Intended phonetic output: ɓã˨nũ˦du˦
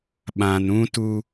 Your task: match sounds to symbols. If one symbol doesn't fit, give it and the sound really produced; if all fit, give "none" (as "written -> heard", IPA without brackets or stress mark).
d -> t